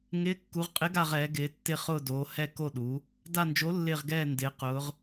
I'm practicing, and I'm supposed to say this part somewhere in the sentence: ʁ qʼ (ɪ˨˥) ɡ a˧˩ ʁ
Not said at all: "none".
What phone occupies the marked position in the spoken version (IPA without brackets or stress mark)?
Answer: ɪ˨˥